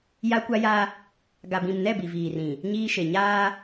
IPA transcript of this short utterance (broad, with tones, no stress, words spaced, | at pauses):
ja˦kʷa˦ja˦ | ɡa˨bĩ˨mnɛ˦˨ bi˨viː˨rĩ˨ | ɲiː˦ʃe˨ ɲaː˦